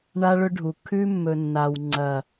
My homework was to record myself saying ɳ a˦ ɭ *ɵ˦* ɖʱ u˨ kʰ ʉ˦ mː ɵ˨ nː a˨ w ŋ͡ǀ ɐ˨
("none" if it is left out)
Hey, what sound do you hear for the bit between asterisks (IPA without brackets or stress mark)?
ɵ˦